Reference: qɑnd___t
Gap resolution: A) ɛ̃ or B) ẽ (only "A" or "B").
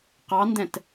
A